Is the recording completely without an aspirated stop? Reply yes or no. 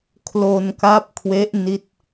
no